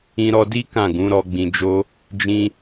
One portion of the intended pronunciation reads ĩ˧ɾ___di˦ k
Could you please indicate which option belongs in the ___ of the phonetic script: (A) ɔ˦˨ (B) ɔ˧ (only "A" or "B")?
B